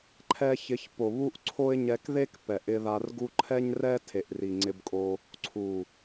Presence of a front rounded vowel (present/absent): absent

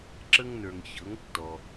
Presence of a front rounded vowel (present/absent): absent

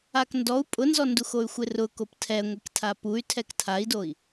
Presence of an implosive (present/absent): absent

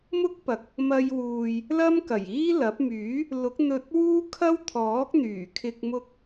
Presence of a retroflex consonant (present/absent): absent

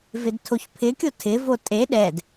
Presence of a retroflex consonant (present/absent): absent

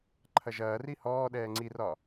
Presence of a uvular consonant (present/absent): absent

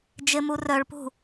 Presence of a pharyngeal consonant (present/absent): absent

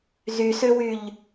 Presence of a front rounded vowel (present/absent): present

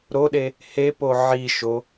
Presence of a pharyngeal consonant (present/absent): present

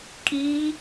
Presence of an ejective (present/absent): present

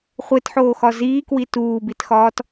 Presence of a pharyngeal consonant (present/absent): present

